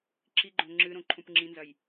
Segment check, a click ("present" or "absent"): present